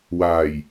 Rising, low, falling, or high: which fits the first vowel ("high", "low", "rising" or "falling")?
low